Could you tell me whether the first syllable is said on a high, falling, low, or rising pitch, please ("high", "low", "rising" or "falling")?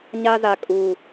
high